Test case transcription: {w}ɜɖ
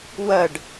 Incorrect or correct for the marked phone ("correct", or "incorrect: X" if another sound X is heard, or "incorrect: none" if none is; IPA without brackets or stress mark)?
correct